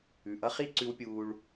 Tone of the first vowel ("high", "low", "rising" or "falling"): low